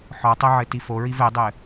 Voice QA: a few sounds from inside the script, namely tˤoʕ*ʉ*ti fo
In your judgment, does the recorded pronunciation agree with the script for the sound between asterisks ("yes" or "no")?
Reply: no